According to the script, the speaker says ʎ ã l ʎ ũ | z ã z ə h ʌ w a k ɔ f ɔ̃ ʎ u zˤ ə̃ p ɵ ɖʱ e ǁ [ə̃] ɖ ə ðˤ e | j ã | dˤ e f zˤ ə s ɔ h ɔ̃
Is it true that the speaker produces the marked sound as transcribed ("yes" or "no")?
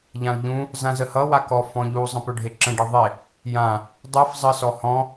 yes